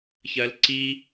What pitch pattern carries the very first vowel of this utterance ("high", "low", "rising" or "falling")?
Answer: low